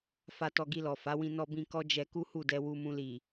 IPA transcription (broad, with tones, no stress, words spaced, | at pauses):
fa˧tɔ˧ɡi˧lɔ˨ fa˨˦wĩ˧ nɔ˧bĩ˧ kɔ˦d͡ʒɛ˧ ku˦hu˦˨dɛ˧ wu˧mũ˧li˨